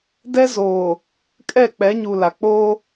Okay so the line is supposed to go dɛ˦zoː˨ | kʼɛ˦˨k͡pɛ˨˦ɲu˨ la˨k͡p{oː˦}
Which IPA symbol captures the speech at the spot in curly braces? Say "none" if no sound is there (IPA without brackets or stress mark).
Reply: oː˦